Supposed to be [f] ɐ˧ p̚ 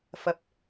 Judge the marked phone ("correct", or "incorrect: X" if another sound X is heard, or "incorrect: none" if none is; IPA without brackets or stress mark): correct